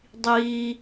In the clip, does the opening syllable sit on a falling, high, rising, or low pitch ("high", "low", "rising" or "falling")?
low